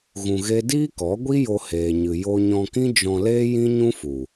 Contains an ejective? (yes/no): no